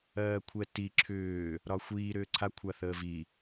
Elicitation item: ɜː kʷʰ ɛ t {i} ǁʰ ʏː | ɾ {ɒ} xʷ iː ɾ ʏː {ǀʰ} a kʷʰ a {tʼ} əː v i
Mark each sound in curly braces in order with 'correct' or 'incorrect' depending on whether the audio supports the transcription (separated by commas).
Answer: correct, correct, correct, incorrect